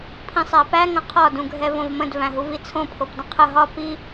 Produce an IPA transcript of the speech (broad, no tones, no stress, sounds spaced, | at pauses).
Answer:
pʰ ĩ sˤ æ p æ ŋ ə̃ qʰ ɒ d ũ ɡʱ ɛ v õ v m ə̃ d v æ̃ ɦ u v i t͡sʰ õ pʰ o p d ə̃ qʰ ə ɦ ɒ p i